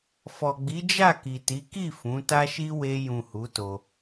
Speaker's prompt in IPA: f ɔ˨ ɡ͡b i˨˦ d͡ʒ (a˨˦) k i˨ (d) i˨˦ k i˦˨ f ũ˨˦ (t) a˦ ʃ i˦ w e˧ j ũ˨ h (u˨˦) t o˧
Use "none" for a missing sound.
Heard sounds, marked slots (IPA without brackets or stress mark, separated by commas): a˦˨, t, t, u˨˦